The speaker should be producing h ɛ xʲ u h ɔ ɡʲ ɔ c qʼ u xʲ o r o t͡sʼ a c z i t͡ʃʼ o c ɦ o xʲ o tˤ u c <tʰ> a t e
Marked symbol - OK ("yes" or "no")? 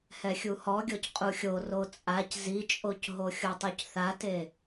no